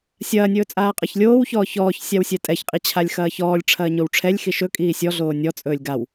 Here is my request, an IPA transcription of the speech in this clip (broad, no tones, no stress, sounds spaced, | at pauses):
sʲ ɐː nʲ ɵː t͡sʼ aː qʼ ɐ ç lʲ oː w ç ɔː ç ɔː ç sʲ a w sʲ ɛ tʼ ɛ ç qʼ i t͡ɕʰ a lʲ x ɐː ç ɔː lʲ ʈ͡ʂʰ ɐː ɲ o w ʈ͡ʂʰ ɛ lʲ x i ʃ ɵ kʼ iː sʲ ɔ ɮ oː nʲ ɔ t͡sʼ ɵː lʲ ɡ a w